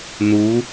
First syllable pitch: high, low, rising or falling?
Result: rising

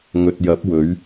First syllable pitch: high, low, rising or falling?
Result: low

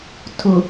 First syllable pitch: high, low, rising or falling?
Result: low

